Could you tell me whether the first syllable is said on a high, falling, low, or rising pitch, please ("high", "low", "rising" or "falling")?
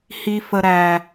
high